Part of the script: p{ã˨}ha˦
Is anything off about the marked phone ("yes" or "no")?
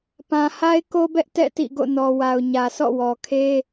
no